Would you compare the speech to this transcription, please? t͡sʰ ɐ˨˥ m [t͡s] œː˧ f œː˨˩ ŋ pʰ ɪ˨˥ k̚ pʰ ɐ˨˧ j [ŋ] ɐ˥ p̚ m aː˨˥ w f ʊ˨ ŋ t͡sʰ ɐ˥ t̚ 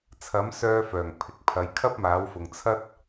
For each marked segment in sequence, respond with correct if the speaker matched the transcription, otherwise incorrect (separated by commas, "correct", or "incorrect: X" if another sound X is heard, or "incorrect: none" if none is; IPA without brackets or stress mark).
incorrect: s, incorrect: kʰ